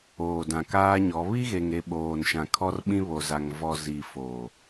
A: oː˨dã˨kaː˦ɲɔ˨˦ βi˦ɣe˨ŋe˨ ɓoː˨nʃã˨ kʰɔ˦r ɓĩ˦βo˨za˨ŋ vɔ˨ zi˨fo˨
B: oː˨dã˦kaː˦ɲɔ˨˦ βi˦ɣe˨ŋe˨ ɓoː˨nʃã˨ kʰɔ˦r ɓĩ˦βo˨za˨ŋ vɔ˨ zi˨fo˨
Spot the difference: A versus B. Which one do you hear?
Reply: A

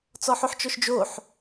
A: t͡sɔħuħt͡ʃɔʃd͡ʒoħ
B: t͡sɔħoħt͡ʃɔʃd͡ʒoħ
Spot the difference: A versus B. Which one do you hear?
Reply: B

